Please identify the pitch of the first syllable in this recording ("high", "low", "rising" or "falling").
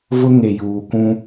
high